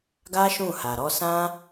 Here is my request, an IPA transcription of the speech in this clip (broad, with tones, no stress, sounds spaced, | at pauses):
ɡ a˦ ʃ ũ˦˨ h a˨ ɾ ɔ˧ s ã˦